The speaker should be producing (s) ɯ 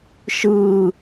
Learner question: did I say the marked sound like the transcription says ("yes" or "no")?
no